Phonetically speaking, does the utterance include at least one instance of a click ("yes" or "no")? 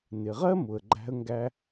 yes